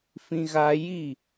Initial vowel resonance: nasal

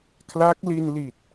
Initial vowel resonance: oral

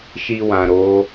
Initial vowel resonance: oral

